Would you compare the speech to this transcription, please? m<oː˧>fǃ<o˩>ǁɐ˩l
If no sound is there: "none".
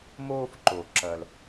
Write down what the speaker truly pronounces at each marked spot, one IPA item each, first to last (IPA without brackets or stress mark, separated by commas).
oː˧, o˩